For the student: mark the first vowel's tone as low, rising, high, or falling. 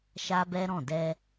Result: high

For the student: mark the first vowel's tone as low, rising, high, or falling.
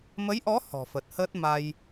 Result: rising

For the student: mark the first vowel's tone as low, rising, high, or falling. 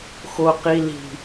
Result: low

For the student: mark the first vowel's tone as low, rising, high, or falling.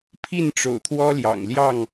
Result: falling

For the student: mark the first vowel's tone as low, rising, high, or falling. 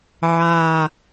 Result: low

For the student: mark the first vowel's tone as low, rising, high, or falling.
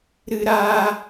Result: high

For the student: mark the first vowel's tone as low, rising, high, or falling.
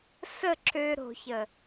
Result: falling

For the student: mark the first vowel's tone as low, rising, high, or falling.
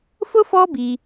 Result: high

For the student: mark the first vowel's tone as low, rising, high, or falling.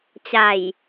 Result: low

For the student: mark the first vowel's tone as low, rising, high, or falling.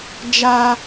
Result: high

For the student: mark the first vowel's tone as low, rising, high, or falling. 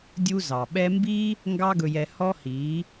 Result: high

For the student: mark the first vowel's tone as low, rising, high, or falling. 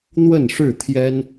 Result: falling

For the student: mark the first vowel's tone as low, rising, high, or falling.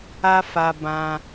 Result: high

